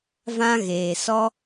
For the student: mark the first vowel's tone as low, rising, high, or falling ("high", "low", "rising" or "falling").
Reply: high